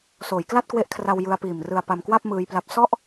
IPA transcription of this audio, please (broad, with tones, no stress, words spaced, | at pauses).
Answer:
soː˩˦jkla˥˩t̚kwe˦˥ʔkʰra˧w jɯ˧a̯piː˨˩m rɯ˧a̯pa˧mkwa˥˩p̚ mɯː˧jpla˦˥p̚ sɔ˥˩ʔ